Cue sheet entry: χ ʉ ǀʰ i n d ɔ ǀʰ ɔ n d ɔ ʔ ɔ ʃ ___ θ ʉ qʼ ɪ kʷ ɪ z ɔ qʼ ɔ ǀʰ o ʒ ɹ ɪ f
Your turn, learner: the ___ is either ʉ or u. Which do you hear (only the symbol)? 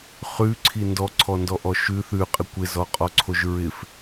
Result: ʉ